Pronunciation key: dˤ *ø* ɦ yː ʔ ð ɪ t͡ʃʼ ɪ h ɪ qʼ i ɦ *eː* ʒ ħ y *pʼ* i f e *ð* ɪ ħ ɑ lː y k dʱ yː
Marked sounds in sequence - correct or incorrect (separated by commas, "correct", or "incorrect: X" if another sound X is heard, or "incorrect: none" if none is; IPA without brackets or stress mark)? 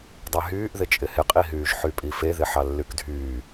incorrect: e, incorrect: yː, correct, correct